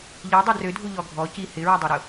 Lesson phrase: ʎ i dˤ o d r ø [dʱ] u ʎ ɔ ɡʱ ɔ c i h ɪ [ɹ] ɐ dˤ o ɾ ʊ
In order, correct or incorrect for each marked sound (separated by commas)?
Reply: correct, correct